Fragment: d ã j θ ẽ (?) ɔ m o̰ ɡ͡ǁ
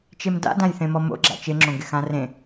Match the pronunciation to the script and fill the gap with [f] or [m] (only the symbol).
m